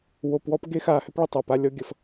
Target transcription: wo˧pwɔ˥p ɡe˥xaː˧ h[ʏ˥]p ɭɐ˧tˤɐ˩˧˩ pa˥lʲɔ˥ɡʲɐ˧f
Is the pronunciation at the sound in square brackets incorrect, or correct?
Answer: correct